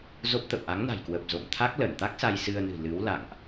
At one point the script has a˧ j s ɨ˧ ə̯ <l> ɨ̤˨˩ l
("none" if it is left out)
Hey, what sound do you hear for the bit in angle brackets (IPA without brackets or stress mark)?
n